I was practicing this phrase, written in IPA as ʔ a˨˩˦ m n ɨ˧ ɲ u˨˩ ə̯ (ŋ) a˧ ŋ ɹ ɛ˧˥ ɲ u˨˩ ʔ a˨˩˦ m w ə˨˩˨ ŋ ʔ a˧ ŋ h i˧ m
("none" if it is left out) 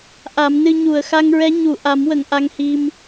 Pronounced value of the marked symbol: x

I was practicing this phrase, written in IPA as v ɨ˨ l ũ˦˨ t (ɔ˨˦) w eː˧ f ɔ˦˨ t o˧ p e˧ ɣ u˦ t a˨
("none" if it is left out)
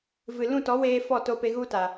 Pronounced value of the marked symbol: ɔ˨˦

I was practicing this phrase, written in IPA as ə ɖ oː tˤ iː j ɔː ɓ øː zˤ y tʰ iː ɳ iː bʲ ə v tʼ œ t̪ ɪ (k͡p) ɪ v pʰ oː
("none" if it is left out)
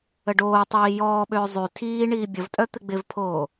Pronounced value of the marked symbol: ɡ͡b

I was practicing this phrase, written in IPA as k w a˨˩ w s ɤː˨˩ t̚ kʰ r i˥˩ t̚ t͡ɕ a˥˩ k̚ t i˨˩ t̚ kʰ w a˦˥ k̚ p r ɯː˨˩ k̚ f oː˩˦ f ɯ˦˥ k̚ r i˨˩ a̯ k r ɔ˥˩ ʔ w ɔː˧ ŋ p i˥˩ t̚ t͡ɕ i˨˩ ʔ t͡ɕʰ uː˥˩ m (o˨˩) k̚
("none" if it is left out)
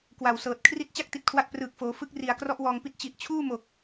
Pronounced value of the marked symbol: o˨˩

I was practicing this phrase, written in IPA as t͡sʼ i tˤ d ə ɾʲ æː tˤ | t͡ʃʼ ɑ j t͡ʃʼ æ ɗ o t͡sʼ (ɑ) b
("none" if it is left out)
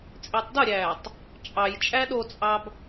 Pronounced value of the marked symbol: ɑ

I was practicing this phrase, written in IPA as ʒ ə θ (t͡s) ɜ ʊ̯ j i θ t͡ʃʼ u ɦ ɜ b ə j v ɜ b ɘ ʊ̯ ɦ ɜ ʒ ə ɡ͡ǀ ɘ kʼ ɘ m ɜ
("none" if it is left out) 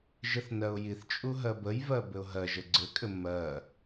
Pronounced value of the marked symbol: n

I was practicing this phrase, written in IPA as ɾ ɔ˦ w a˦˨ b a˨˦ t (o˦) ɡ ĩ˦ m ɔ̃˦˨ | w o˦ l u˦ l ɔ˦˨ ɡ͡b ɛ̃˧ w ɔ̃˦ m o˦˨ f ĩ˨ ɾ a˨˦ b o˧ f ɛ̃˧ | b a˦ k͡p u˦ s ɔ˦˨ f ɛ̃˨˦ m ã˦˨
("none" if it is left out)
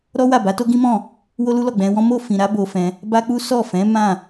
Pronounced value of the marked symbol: o˦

